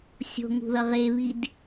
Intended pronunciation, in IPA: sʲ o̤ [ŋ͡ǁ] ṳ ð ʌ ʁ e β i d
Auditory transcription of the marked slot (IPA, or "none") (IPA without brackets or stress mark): ŋ